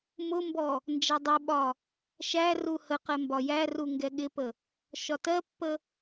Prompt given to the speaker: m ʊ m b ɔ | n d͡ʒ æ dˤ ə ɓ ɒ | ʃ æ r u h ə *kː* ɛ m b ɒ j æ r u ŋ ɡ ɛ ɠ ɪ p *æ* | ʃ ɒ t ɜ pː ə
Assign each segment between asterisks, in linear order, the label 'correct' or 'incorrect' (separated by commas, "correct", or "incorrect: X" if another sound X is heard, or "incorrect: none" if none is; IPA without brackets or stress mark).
incorrect: q, incorrect: ə